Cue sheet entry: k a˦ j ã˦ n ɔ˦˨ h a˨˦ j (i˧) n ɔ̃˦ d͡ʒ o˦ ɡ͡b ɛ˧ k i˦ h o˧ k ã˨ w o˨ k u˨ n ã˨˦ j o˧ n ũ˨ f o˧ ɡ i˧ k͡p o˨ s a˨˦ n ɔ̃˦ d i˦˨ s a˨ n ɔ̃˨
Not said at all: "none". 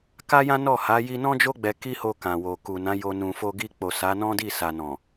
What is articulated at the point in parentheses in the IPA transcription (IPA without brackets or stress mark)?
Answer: i˧